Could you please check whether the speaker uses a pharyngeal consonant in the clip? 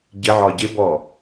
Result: yes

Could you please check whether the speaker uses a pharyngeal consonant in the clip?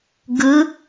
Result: no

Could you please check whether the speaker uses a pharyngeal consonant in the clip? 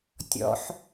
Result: yes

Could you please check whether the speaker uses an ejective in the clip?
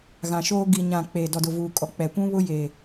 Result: yes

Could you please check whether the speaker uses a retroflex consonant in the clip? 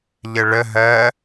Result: yes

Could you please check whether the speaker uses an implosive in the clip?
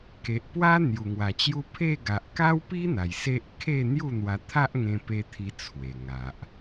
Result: no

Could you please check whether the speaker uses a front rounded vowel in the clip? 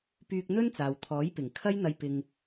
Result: yes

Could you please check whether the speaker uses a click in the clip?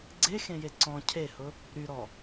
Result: yes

